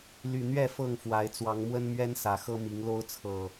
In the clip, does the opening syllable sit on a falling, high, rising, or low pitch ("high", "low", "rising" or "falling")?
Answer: low